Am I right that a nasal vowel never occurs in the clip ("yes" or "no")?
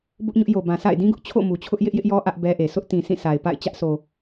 no